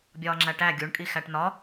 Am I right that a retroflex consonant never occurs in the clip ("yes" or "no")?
no